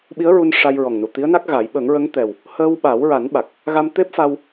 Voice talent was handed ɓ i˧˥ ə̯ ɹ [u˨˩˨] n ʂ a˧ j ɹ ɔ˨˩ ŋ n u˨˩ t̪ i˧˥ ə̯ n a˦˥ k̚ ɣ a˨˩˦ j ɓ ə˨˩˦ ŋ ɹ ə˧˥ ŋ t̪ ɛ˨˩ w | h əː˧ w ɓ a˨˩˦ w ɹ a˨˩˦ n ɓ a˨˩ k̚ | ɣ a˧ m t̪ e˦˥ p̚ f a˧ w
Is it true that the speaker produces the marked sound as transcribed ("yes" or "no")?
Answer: no